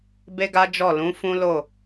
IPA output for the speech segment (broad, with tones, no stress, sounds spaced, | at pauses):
b e˦ ɡ a˦ d͡ʒ ɔ˦˨ l ũ˨˦ f ũ˦ l o˦˨